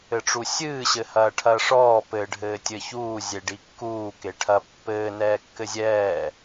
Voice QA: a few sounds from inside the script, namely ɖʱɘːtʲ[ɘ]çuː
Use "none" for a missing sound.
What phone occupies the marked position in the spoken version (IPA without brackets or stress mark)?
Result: ɘ